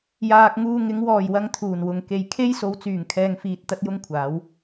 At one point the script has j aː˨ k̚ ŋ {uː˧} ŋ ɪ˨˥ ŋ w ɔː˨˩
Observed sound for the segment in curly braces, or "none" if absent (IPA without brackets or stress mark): uː˧